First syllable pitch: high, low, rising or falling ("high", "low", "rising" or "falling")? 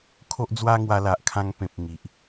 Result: high